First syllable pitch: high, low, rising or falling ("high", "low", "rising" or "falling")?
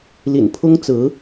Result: low